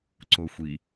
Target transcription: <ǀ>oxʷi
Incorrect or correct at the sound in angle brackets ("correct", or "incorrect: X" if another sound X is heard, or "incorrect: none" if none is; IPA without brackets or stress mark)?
correct